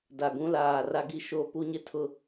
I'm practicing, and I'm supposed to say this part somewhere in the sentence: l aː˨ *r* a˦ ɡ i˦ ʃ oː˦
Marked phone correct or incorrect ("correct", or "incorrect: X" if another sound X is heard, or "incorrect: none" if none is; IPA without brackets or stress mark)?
correct